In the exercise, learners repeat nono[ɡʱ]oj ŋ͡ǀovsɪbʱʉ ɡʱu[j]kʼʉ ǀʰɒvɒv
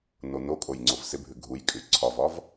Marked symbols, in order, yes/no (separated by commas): no, yes